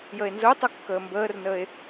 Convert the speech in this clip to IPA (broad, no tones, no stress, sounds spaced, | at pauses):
j ə e̯ n z ʊː tˤ ʌ kː əː m b əː r n əː e̯